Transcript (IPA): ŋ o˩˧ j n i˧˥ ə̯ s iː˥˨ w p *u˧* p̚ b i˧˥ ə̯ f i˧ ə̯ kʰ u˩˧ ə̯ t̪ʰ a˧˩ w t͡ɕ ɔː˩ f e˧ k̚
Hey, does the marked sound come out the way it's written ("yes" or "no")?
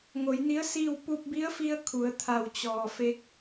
yes